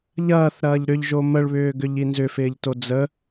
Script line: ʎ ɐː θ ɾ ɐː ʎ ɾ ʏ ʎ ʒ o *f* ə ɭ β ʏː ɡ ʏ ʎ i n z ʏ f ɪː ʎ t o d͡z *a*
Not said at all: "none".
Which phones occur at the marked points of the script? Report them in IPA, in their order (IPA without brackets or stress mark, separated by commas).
m, ə